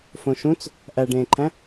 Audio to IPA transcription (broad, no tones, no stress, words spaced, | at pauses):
fõʃũt͡s | ʔæɖẽːǃʰæ̃